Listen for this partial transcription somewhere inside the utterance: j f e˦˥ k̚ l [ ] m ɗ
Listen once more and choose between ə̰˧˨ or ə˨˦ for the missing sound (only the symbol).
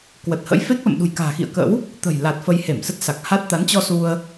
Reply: ə̰˧˨